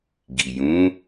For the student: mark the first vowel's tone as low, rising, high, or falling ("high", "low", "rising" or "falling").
low